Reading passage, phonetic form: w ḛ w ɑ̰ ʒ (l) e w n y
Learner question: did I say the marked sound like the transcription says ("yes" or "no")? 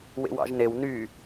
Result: no